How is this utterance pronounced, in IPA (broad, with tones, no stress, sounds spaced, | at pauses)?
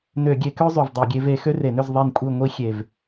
n ø˧˩˧ ɡʲ e˨˦ k ø˥ zˤ y˨˩ v dˤ e˧˩˧ ɡʲ e˨˦ v e˨˦ x ø˥ r e˧˩˧ n ø˥˧ z ðˤ e˥˧ n kʷʼ i˥˧ ŋʷ i˥ xʲ e˨˩ v